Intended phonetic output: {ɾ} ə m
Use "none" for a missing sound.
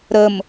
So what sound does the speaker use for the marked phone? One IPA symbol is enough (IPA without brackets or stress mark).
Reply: ɾ